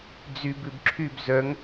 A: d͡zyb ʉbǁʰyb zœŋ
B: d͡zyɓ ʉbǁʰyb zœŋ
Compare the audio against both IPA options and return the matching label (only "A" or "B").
A